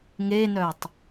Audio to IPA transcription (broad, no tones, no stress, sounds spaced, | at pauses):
ŋ e n œ tˤ